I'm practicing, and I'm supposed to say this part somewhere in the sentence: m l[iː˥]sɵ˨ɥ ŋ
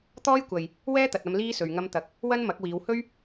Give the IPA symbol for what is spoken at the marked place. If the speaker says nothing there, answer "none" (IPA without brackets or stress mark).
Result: iː˥